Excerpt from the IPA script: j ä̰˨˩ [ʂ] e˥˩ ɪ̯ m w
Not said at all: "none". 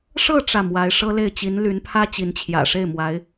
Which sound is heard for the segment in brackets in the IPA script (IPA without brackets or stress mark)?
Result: ʂ